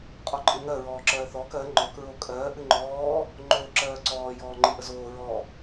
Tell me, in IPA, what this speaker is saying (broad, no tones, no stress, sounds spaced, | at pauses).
qʼ ɔ ǃʼ ɨ ŋ ɜ ɹ ɔː ǁ ɜː θ ɔː k ɜ ŋ͡ǃ ɔ k ɹ o kʼ ɜː ʔ ɨ ŋ͡ǃ ɔː | ŋ͡ǃ oː ǁ ɜː ǀ ɔː j ɔː ŋ͡ǃ ɨ ʔ ə z oː ɹ ɔ